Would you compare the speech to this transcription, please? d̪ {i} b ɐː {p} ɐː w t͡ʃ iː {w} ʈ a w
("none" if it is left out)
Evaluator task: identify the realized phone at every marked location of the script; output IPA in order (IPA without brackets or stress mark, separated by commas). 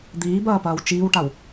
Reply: iː, p, w